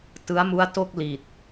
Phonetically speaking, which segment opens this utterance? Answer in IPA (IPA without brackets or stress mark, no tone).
t